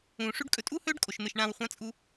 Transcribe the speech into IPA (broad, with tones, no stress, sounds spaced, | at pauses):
ũː˨ ʂ ʉ˧ ɖ kʼ ɵ˨ tʼ uː˦ h ɵː˦ ɖ kʼ o˨ ʃ n̪ ɨ˨ ʃ ɳ ã˨ w χʷ ã˧ t͡sʼ u˧